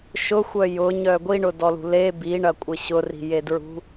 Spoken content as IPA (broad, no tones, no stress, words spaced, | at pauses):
ʃʊxʷœ jʊɲœ ɡʷiɳʊdɔlṳ le biɳɐkʷʼɪ ɕʊri̤jedɹṳ